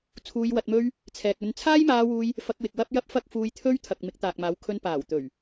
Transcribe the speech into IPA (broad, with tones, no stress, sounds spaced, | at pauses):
t͡sʰ uː˧ j w ɐ˧ t̚ m ɵ˥ ɥ | t͡sʰ ɛː˨ k̚ ɵ˧ n t͡sʰ aː˥ j m aː˧ w uː˧ j | f ɐ˧ k̚ w ɪ˨ k̚ w ɐ˥ p̚ j ɐ˥ p̚ f ɐ˥ k̚ f uː˧ j t̪ʰ ɵ˥ ɥ t̪ʰ ɐ˨ k̚ m ɪ˨˥ k̚ t̪ aː˨ k̚ m aː˨˥ w kʰ ɵ˧ n p aː˨˩ w t̪ ɵ˨˩ ɥ